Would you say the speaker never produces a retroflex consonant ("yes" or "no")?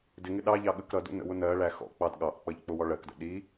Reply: no